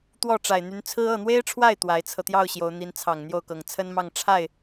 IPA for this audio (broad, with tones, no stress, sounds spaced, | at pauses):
t̪ w ɔ˥˩ ʈ͡ʂ a˨˩ ɪ̯ n̪ y˧˥ n t͡sʰ ɹ̩˥ ɤ˥˩ n̪ w e˥ ɪ̯ ʈ͡ʂʰ w a˥˩ ɪ̯ t̪ w a˧˥ ɪ̯ t͡sʰ ɤ˧ t̪ j ɑ˥˩ ʊ̯ ɕ j o˧˥ ʊ̯ n̪ i˧˥ n t͡sʰ ɑ˨˩ ŋ n̪ j o˥˩ ʊ̯ k ɤ˨˩ ŋ t͡sʰ ə˥ n m ɑ˥˧ ŋ ʈ͡ʂʰ a˥˩ ɪ̯